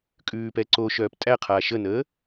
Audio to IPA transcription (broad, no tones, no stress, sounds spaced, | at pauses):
kʼ ʉː p ɛ ǀ o ʃ œː p tʼ æ qʰ a ʃ ə n əː